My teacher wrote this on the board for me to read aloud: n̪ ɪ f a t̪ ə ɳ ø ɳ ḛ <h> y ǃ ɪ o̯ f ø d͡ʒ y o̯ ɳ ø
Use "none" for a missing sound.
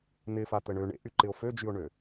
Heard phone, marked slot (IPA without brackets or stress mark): ʔ